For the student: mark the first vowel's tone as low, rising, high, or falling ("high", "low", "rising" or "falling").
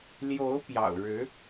rising